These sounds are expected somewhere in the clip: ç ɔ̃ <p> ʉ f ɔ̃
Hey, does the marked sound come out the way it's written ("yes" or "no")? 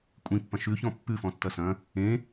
no